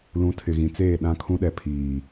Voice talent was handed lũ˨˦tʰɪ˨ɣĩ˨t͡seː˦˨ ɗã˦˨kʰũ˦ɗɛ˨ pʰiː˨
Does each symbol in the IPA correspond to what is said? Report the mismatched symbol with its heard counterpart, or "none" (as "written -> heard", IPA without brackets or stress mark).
none